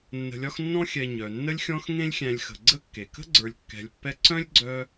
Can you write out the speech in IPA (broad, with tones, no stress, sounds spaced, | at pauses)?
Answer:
nː ə̤˨ lʲ ɒ˦ x nː ɔ̃˦ xʲ ɛ˨ ɲ œ˩ nː ə˦ lʲ xʲ ɔ̃˦ x ŋ ẽ˦ lʲ xʲ æ̃˨ lʲ x ə̤˩ ɡ͡ǀ ə˦ kː e˩ k ə̤˥ ɡ͡ǀ ə˞˨ lʲ kː ɛ̤˨ lʲ pː ɛ˦ ǀ œ̃˥ lʲ ɡ͡ǀ œ˦